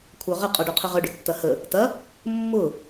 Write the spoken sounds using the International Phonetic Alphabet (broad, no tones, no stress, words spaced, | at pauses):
kʷʰœʁə qʼɔɖœqʰəʁœ ɖʏtːɐhə | tɐ | mːʊ